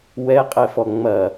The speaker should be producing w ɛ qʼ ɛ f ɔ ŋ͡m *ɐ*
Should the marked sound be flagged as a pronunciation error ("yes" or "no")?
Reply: no